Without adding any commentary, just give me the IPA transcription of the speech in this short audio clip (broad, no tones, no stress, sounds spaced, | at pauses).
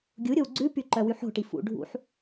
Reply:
ɡʲ u ɾʲ o w ɡ͡ǀ ʉ p y ǃ œ w y ħ o̤ ʈ i f ṵ ɖʱ ṵ ħ